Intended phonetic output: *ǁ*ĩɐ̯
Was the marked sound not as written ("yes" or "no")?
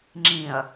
yes